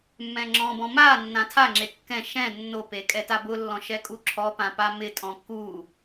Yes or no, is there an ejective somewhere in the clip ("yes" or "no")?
yes